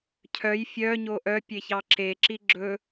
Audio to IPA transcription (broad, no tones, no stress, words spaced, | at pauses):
cʰœj fʲœɲo ʔœpʲeçɑ ǁeǁi ɡ͡ǁɵ